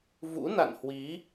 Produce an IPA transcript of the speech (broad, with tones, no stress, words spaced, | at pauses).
vṵ˧˥na̰˧˨nhwi˨˦